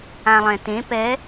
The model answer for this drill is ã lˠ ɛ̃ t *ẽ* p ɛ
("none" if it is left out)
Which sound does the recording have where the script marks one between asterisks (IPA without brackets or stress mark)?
ẽ